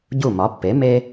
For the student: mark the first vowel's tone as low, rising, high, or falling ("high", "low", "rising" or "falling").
falling